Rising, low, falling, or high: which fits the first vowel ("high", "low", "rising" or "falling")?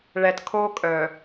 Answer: low